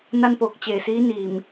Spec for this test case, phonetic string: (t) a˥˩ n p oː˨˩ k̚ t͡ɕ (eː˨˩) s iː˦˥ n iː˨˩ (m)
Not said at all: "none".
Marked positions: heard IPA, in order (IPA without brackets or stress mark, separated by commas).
n, eː˨˩, m